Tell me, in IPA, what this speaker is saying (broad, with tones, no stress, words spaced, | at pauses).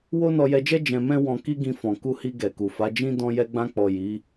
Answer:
wo˦nɔ˧jɛ˧d͡ʒɛ˦ d͡ʒɛ̃˧mɛ̃˦ wɔ̃˧ ki˦ɡĩ˧fɔ̃˨ ku˧hi˧ ɡɛ˨ku˨fa˨˦ d͡ʒĩ˦ dɔ̃˦jɛ˦ ɡ͡bã˧k͡pɔ˨ ji˨˦